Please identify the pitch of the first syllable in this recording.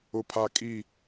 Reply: low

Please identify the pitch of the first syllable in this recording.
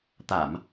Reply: low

